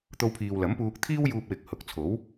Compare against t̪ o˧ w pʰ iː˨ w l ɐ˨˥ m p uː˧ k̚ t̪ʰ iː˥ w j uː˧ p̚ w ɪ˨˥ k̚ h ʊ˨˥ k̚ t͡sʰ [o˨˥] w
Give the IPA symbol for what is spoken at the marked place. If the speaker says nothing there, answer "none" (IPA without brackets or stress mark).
o˨˥